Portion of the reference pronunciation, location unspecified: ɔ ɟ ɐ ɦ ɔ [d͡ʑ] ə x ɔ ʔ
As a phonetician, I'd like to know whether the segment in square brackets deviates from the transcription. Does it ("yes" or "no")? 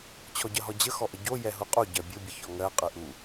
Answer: no